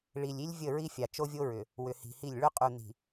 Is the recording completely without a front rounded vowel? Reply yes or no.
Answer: no